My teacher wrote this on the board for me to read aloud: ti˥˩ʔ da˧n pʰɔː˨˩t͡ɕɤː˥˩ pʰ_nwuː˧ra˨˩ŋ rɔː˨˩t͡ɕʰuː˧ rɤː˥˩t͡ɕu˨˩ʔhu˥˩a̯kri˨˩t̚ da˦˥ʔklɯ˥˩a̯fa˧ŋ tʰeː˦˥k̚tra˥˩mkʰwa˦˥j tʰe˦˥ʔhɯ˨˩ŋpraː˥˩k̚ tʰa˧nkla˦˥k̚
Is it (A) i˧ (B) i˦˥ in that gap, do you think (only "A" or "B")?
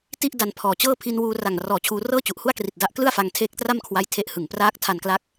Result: A